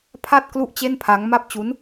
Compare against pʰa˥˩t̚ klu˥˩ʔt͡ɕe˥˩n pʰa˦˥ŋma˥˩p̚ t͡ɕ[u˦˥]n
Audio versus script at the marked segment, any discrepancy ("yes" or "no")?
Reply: no